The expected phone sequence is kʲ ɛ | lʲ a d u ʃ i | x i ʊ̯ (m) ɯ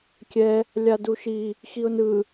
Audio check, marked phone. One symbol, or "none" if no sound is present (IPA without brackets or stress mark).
n